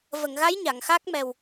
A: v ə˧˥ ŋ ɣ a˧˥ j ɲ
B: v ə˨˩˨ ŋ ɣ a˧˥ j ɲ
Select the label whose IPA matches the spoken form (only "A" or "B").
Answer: B